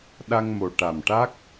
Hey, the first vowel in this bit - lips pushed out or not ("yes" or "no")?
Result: no